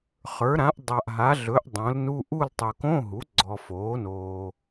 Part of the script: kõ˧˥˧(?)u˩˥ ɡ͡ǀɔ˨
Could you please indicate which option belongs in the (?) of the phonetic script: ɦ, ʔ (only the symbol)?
ɦ